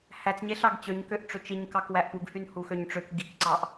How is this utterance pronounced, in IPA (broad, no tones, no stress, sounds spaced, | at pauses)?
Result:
h æ t͡s ɲ e ɬ ɑ ɡ t͡ɕ ø ɲ k ø ʔ ʈ͡ʂ ø t͡ʃ i ɲ k ɑ k w æ ʔ p u ɡ h y n h u x ø ɲ ʈ͡ʂ ø k ɡ i k ǀ ɑ ʔ